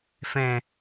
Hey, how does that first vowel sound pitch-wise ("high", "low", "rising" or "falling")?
low